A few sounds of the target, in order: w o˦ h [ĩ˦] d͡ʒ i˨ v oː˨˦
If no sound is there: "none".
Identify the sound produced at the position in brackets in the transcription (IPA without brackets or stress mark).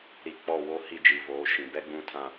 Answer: i˦